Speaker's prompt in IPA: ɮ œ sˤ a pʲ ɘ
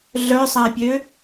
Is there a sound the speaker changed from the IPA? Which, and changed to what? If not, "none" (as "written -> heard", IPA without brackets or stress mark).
ɘ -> ø